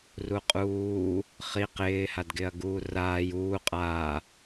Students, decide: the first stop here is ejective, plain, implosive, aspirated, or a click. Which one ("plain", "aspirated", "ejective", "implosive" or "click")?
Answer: ejective